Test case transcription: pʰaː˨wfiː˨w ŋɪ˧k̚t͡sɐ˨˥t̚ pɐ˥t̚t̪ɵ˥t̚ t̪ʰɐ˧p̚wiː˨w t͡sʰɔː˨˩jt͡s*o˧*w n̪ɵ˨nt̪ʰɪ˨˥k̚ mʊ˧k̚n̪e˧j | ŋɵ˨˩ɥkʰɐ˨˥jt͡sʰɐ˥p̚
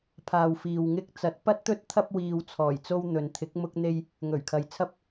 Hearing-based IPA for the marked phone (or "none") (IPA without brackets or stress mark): o˧